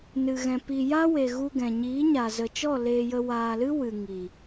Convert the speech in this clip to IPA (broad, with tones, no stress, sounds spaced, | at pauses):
n ɨ˧ ɣ ɛ̃˧ p i˧ j a˦ w e˨ ɣ u˧ ɡ ɛ̃˨ ɲ iː˨˦ ɲ a˨ z ə˨ t͡ʃ ɔ˦˨ l eː˧ j ə˧ w aː˨ l ɨ˦ w ɨ˨ ŋ i˨